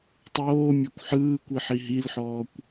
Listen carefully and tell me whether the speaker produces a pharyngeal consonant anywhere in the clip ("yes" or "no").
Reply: yes